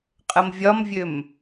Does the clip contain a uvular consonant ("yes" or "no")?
yes